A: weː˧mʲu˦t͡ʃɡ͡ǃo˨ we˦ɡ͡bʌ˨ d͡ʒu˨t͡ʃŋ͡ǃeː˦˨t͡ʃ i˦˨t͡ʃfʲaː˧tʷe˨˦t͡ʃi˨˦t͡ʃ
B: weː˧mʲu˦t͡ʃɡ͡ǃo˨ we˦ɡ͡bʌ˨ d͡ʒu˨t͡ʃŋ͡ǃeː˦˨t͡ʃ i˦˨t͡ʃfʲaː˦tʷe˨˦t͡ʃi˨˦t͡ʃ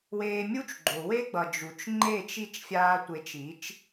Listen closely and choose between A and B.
A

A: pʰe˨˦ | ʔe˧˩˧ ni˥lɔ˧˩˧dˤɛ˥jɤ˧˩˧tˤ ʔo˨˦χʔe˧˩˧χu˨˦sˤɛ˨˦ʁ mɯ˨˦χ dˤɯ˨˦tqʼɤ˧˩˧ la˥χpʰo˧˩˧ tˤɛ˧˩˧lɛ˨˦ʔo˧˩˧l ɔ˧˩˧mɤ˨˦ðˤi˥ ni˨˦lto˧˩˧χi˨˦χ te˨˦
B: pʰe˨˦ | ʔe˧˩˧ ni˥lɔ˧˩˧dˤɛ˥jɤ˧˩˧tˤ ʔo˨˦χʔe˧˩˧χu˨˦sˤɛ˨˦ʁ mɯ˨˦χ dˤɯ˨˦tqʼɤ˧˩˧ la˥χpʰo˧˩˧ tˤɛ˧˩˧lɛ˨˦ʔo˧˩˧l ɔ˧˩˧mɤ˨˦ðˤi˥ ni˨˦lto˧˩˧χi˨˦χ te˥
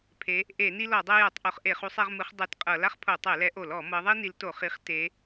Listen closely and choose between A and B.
A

